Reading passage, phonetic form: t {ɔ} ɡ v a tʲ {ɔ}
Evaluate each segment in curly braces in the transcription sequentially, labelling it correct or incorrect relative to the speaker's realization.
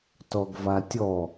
correct, correct

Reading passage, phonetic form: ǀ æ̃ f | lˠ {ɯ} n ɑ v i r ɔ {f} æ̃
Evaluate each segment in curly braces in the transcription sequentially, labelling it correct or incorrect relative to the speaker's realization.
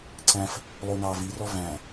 incorrect: u, incorrect: v

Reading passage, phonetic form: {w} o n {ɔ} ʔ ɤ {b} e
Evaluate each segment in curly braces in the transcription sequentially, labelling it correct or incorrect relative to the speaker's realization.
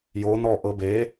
incorrect: j, correct, correct

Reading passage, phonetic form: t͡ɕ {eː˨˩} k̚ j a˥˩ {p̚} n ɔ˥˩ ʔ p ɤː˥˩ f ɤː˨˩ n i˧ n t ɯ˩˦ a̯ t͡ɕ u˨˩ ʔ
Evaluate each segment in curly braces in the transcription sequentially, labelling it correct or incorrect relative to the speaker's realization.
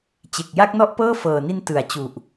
incorrect: e˨˩, incorrect: k̚

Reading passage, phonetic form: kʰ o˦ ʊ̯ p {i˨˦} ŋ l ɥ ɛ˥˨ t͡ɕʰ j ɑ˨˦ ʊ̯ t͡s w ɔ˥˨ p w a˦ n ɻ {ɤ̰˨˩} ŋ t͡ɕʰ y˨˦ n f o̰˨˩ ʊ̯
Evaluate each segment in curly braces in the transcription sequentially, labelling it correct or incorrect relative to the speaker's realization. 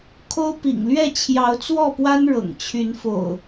incorrect: ḭ˨˩, correct

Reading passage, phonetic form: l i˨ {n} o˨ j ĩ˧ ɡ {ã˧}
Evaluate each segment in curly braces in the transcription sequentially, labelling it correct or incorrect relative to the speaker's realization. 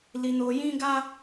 correct, incorrect: a˧

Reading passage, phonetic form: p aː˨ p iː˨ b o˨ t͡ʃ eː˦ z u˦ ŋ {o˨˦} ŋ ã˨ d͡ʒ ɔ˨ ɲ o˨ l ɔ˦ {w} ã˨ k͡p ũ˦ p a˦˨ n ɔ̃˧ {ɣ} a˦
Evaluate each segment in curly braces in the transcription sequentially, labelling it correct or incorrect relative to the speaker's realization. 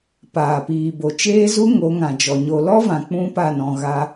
correct, incorrect: v, correct

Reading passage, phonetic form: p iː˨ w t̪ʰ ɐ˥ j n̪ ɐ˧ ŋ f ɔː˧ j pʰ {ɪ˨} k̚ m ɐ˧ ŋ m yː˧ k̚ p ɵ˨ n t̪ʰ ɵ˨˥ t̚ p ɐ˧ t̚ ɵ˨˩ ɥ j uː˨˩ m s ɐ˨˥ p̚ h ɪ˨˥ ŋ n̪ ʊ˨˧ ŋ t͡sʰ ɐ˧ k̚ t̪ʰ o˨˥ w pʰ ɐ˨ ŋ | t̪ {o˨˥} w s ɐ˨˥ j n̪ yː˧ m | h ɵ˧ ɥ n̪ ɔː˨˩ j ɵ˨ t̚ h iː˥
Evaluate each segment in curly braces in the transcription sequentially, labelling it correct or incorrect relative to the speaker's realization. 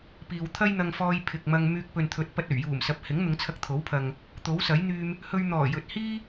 correct, correct

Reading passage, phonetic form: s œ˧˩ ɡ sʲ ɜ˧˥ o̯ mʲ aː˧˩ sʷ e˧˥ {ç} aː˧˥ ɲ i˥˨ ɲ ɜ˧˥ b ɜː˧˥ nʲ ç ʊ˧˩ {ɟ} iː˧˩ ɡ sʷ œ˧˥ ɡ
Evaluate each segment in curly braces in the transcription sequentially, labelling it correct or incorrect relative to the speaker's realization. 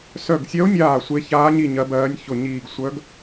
correct, incorrect: ɲ

